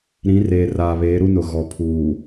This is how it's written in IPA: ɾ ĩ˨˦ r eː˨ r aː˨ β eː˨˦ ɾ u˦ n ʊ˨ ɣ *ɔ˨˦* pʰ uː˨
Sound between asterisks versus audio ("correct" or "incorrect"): incorrect